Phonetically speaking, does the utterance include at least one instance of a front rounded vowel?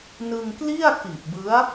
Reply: no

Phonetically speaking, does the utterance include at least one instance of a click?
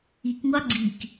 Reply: yes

